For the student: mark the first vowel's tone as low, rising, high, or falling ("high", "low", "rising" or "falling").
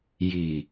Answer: low